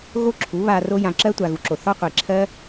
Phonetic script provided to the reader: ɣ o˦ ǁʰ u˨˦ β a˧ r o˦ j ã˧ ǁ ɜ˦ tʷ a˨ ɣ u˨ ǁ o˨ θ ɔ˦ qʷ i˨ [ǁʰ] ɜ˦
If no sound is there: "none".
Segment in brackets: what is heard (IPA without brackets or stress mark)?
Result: ǁʰ